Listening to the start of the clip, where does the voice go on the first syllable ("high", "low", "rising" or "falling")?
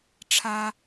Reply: high